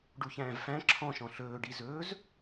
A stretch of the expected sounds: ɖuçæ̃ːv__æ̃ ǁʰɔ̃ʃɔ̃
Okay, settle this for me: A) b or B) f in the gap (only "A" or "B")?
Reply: B